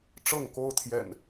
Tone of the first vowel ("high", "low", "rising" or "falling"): falling